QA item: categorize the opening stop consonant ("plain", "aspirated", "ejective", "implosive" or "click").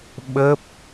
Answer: implosive